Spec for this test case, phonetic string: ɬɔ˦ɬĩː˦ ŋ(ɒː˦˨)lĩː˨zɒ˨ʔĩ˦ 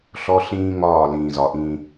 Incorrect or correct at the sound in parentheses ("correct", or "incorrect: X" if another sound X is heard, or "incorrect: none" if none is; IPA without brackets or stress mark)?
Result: correct